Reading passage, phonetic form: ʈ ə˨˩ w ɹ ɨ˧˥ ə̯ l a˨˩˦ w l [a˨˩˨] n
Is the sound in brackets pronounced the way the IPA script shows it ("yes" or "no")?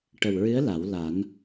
no